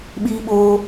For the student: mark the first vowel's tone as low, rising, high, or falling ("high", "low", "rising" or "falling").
high